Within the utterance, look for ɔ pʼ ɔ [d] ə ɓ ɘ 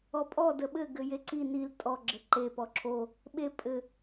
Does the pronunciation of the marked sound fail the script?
no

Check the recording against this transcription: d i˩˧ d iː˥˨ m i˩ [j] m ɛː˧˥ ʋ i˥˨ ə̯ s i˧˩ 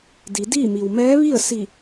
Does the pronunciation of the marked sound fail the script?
yes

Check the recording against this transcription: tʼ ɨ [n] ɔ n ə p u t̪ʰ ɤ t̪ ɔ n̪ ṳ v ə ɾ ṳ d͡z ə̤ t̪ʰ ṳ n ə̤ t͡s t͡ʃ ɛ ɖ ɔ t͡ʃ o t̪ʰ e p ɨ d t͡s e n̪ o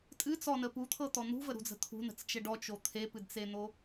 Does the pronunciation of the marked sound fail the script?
yes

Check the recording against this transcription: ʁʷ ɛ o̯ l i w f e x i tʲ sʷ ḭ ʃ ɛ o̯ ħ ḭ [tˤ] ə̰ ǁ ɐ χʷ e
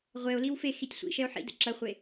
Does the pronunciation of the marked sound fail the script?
yes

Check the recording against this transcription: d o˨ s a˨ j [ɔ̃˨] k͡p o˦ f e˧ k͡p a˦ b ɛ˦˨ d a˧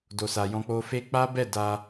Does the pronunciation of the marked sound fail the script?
yes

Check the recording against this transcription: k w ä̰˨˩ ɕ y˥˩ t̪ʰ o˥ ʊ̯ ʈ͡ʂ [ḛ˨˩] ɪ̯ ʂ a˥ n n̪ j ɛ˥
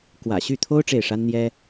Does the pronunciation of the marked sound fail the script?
yes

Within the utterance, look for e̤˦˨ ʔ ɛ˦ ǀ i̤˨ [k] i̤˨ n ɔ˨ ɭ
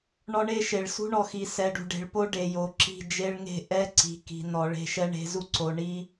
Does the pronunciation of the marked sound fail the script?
no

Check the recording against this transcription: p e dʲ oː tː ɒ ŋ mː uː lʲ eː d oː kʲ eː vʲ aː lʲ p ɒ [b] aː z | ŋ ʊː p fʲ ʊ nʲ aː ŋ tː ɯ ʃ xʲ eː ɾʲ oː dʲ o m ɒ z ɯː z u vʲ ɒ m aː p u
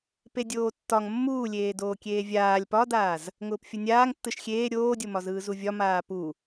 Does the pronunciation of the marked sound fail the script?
yes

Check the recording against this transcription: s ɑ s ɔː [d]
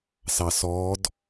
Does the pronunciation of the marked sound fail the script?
no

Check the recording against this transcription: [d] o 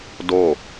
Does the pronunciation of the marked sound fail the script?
no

